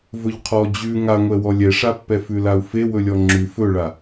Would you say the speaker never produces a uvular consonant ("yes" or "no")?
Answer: no